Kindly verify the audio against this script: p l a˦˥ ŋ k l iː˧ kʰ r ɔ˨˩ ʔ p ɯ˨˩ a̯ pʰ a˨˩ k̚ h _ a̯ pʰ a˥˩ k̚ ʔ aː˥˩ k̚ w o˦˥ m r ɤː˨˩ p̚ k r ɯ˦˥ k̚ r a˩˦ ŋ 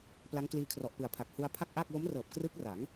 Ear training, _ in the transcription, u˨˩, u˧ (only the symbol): u˧